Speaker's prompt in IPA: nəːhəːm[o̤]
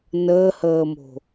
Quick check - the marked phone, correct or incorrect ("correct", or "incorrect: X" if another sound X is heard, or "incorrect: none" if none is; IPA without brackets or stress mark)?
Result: correct